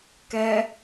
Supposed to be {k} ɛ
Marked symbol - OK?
yes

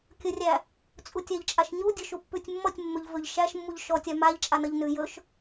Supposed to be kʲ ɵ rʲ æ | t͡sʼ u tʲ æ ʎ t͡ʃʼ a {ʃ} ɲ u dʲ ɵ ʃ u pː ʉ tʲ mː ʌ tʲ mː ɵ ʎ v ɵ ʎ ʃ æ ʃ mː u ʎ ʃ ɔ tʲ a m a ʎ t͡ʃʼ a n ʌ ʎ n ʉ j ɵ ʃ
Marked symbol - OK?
yes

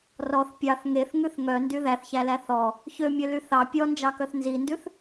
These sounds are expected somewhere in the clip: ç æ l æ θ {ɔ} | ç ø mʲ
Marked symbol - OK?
yes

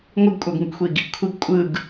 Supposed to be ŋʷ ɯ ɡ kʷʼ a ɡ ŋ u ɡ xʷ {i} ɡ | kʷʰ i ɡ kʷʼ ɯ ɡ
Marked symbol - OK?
yes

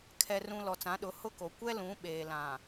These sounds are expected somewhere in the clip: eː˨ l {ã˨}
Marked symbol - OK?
yes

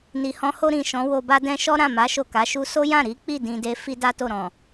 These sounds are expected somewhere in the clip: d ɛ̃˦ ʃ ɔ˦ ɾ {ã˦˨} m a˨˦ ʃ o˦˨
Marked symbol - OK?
yes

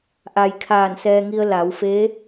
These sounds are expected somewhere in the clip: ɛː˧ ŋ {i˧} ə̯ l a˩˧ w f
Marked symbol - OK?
yes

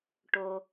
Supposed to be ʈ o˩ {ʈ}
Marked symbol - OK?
no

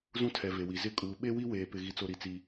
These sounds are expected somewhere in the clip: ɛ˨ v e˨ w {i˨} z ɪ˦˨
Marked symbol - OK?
yes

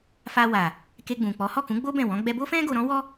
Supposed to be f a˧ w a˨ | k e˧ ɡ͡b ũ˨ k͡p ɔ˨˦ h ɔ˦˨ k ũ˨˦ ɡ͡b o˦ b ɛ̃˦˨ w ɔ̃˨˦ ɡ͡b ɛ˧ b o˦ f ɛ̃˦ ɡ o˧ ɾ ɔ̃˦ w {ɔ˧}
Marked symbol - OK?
no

